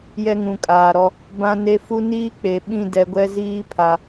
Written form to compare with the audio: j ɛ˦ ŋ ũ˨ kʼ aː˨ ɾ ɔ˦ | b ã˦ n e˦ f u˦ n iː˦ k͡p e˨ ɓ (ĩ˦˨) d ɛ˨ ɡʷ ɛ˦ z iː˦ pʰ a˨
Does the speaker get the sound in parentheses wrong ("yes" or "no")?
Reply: no